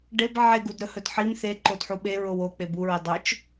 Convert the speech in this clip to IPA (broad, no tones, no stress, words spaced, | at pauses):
ɖeb ʕeɡudɾɵhɵd ħim θe ǃodħuɓe ɹowo k͡pebuɹe dˤɵt͡ʃ